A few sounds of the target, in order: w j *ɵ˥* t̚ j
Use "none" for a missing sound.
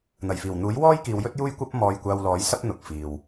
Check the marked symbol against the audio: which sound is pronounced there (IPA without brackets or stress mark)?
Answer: ɵ˥